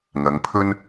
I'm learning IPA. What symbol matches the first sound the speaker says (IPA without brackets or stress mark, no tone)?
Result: ŋ